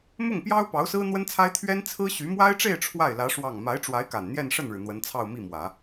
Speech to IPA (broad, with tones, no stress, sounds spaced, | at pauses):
m ʊ˥˩ ŋ p j ɑ˥ ʊ̯ p ɑ˧˥ ʊ̯ s ɹ̩˥ n̪ w ə˥ n t͡sʰ a˥ ɪ̯ t̪ʰ ɥ ɛ˥ n t͡sʰ ɹ̩˥ ɕ y˧˥ m w a˥ ɪ̯ ʈ͡ʂ e˥˧ ɪ̯ ʈ͡ʂʰ w a˥˩ ɪ̯ l ä˧˥ ʂ w ɑ˥˩ ŋ m a˧˥ ɪ̯ ʈ͡ʂ w a˧˥ ɪ̯ k a˨˩ n n̪ j ɛ˥˧ n ʂ ə˥˩ n ɻ ɻ̩˩ n̪ w ə˧˥ n t͡sʰ ɑ˥˧ ʊ̯ m i˥˩ m w ä˨˩˦